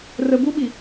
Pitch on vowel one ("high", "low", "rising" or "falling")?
low